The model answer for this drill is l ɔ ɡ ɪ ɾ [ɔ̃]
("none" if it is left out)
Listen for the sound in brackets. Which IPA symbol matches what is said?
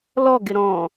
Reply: ɔ̃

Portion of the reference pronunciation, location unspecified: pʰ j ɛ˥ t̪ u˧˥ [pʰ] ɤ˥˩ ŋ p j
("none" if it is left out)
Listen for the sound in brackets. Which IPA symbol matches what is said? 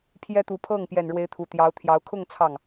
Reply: pʰ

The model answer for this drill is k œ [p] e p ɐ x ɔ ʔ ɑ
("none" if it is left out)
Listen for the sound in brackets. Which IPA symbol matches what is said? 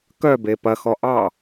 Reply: b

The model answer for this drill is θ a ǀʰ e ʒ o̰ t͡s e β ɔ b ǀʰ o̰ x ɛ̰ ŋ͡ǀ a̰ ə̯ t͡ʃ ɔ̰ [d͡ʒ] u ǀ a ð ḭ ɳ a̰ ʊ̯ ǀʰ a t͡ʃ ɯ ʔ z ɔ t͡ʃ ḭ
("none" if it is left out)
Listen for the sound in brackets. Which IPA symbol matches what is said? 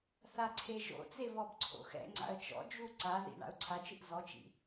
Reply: d͡ʒ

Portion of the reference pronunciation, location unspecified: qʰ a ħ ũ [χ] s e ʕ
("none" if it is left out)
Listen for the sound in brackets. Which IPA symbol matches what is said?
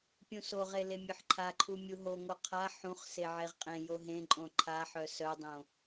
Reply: χ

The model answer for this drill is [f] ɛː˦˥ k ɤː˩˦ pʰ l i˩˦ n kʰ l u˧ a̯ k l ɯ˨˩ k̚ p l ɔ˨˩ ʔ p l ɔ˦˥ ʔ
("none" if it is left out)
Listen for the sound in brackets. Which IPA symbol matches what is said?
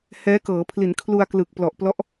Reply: h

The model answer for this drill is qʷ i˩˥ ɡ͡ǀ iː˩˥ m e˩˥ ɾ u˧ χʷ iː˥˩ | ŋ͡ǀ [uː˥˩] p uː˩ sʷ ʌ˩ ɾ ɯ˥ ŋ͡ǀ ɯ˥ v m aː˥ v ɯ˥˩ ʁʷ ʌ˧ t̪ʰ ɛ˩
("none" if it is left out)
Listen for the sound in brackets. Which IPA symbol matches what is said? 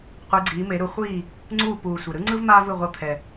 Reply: uː˥˩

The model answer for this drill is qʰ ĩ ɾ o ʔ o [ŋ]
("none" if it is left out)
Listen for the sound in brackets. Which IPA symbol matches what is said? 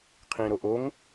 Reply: ŋ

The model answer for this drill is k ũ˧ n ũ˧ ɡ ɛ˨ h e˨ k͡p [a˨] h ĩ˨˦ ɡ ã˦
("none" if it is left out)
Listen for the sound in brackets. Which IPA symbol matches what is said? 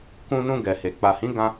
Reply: a˨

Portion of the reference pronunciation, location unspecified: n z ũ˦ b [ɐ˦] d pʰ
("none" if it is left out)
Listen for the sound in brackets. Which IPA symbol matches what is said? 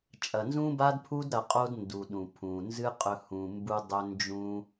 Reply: a˦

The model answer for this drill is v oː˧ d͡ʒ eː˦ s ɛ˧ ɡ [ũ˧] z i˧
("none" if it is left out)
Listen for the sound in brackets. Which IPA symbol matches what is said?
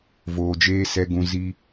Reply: ũ˧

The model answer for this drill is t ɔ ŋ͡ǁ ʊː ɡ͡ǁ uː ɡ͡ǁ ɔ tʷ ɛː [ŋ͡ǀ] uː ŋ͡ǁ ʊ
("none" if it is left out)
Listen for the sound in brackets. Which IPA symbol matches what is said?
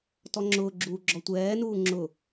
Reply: n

